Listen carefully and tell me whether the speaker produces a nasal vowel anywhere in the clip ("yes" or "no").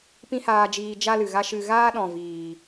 yes